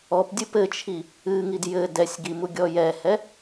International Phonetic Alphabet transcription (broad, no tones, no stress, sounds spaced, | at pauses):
ɔ p dʲ ɨ p ɘ t͡ʃʰ i | ɨ ŋ i d j ɘ d ɛ sʲ ɡ i m u ɡʲ ɔ j ɛ h ɛ